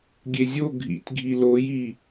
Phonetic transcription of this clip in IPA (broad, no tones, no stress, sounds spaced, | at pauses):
ɡʲ e zʲ o ɡʱ ḭ tʲ ɡʱ i l o j i